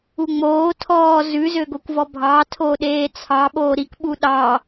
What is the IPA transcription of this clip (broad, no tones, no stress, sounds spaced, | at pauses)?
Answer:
u ŋ͡m oː tʰ ɔː z ʉ z ø ɡ o kʷ v ɔ bʱ ɑ tʰ o ɗ eː t͡sʰ ɑ ɓ oː ɾ i k ɓ u ɗ ɑ